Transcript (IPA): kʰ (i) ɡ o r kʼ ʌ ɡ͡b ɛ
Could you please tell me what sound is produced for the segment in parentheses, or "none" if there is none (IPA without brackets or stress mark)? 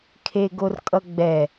e